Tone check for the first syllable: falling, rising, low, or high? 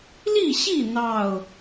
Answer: falling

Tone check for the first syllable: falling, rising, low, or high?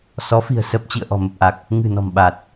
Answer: rising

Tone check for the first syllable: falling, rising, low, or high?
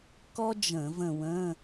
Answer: high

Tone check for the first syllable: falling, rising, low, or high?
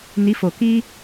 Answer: rising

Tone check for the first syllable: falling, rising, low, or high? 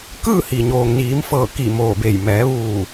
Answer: falling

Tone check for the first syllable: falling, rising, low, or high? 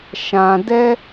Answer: low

